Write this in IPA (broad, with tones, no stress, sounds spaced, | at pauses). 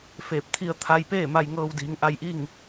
f eː˧˩ p̚ t̪ʰ i˧ ə̯ t̪ʰ a˧ j p eː˥˨ m a˧ j ŋ ɤː˧ w d iː˩˧ ŋ ʔ a˧ j ʔ i˥˨ ŋ